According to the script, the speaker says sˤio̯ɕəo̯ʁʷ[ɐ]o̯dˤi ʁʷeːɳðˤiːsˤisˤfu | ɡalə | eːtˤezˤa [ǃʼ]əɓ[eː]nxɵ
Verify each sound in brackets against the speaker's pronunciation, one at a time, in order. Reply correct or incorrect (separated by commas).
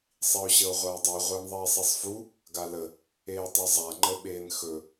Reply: incorrect, incorrect, correct